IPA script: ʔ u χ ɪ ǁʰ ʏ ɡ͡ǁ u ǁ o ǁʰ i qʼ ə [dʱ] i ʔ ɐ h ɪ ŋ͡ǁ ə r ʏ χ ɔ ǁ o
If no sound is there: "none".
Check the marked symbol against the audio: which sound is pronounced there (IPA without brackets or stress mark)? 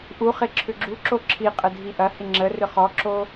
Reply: dʱ